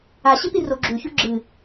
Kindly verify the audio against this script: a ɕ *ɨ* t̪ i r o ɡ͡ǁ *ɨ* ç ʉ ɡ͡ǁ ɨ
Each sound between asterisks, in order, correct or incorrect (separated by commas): incorrect, incorrect